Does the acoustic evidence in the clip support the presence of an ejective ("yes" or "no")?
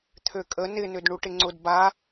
yes